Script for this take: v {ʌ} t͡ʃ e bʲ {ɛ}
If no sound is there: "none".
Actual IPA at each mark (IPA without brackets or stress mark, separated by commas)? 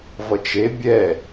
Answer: ʌ, ɛ